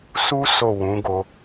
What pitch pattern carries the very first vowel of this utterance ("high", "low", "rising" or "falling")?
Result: high